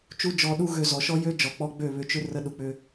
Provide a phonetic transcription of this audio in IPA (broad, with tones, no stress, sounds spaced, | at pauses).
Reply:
t͡ʃ u˦ d͡ʒ ɔ˧ ɗ u˦ ɣ ø˧ z ɔ˨ ʃ ɔ˦ j ø˦ d͡ʒ ɔ˨ k͡p ɔ˧ ɡ͡b ø˦˨ β ʏ˧ t͡ʃ ʏ˦ r ə˧ ɗ u˨ k͡p ʏ˧